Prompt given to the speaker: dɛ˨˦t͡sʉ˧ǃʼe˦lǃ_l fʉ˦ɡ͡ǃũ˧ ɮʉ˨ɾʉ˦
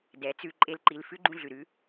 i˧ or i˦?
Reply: i˧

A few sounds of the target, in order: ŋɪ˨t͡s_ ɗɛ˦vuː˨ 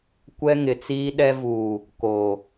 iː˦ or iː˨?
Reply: iː˦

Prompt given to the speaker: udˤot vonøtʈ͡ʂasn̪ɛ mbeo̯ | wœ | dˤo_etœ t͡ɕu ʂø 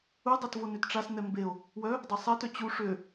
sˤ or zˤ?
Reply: sˤ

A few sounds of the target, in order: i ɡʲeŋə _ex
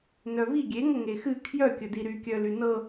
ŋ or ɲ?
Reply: ŋ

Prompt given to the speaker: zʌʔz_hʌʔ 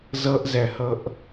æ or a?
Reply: æ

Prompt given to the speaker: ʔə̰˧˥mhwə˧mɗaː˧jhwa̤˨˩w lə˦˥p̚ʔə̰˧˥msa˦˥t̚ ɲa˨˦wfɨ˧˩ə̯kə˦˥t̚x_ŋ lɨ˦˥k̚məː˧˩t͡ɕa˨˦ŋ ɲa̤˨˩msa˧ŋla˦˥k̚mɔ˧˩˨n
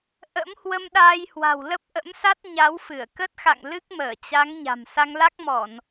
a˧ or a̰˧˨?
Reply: a̰˧˨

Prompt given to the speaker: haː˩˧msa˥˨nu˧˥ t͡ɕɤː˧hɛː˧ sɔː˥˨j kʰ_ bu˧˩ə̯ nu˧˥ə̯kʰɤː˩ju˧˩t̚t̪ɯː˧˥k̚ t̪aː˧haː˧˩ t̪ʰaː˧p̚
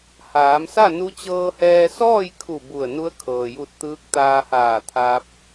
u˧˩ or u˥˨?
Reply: u˧˩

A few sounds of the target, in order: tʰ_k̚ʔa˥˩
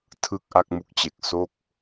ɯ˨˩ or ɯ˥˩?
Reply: ɯ˥˩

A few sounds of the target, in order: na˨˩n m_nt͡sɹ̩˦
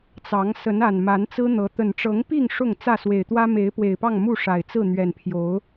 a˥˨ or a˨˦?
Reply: a˨˦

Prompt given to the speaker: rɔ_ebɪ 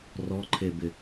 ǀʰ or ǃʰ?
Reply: ǃʰ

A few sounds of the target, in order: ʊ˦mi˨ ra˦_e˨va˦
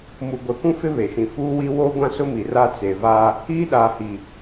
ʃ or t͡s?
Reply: t͡s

